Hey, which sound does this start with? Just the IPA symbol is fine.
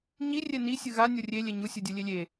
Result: ɲ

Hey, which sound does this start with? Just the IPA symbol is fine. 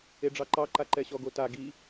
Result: e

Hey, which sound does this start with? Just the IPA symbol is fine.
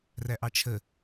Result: r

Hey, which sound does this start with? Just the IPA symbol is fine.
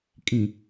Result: kʼ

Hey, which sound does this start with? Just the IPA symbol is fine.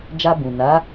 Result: d͡ʒ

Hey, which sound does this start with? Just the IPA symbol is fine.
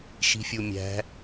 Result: ʃ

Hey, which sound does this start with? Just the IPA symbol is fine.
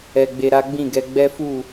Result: ɛ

